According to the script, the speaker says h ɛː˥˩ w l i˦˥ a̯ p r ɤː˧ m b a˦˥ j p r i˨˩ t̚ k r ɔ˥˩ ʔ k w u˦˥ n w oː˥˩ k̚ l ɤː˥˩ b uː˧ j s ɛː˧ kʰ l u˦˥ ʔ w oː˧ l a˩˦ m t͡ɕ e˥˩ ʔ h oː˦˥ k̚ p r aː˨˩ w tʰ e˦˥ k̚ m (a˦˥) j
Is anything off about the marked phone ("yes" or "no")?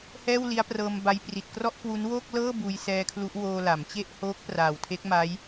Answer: no